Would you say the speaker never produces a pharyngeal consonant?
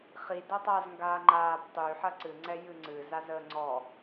no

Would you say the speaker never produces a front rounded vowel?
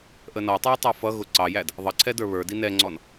yes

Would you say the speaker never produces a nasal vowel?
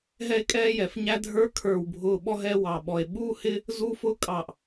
yes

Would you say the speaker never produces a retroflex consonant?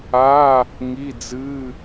yes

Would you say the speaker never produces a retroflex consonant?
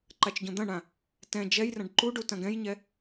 no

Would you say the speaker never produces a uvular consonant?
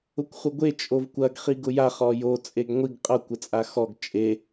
no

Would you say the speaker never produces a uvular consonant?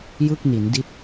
yes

